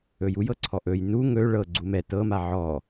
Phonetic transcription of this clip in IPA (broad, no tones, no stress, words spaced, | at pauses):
ɵjujɤ ǀʰɔʔɵj nu ŋɵ ɭɤ ɡ͡ǀumɛ tɤma ʕɔ